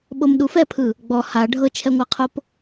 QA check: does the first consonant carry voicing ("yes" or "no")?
yes